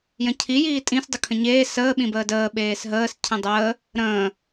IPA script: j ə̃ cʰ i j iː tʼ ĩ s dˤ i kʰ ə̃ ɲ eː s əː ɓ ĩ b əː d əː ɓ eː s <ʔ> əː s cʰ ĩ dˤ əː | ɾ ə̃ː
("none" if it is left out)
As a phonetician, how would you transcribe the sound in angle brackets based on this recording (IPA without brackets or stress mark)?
ɦ